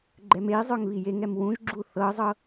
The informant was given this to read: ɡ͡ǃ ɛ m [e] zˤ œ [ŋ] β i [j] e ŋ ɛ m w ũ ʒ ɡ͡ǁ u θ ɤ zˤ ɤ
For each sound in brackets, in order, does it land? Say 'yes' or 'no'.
yes, yes, yes

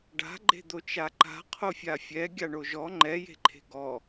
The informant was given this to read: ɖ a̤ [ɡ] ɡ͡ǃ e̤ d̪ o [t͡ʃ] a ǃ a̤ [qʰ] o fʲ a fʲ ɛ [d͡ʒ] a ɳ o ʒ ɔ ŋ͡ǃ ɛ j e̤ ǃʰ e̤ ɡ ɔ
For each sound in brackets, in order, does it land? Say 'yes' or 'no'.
no, yes, yes, no

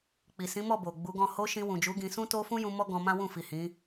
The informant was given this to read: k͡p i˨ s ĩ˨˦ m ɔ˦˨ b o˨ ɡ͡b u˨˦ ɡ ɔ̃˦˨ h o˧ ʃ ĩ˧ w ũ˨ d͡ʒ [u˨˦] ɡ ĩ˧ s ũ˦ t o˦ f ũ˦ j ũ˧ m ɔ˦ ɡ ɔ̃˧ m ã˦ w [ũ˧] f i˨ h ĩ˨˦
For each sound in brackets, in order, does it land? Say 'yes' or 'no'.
yes, no

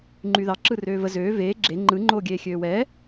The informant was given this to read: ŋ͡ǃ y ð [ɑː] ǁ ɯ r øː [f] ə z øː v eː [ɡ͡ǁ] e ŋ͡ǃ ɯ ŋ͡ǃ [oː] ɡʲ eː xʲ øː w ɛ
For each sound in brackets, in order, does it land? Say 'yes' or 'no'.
no, no, yes, yes

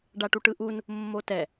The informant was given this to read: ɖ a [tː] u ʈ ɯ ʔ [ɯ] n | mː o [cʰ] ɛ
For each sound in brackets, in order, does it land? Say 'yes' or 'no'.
no, no, no

